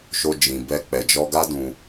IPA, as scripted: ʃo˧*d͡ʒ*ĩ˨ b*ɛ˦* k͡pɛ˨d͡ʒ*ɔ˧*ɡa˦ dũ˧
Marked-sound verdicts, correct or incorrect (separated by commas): correct, incorrect, correct